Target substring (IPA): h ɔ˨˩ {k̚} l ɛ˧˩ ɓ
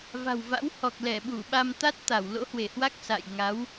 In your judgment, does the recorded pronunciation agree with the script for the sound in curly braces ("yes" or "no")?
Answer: yes